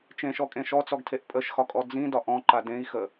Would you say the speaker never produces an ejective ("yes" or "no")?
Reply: no